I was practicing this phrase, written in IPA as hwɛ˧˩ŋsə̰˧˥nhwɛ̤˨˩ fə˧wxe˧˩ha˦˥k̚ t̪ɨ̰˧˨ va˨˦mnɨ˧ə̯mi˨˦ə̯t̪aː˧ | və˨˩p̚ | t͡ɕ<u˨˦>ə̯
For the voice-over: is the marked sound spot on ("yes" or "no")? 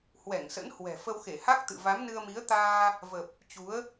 yes